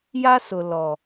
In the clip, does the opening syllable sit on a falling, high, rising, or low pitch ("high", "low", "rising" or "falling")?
high